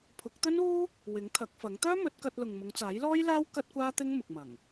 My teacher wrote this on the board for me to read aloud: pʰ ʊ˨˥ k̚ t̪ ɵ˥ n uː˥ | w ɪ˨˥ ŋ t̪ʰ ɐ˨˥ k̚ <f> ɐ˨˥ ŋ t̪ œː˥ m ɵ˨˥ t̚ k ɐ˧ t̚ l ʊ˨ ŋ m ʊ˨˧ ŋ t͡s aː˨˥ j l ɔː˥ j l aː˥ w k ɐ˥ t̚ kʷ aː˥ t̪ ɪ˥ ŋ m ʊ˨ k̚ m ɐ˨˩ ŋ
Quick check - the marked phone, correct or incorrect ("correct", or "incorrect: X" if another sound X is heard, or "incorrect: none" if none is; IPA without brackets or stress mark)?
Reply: correct